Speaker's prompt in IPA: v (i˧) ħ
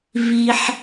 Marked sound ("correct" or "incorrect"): correct